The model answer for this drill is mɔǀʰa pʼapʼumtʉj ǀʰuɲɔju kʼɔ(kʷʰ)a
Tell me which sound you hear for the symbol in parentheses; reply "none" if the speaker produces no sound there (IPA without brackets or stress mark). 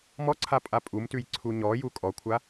kʷʰ